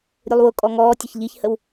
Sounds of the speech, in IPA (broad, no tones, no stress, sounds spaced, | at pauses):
ɾʲ u lˠ w ʊ kʼ ɔ ŋ ɔː tʲ ə ç ʎ i ç h ə w